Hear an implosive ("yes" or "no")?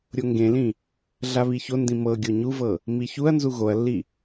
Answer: no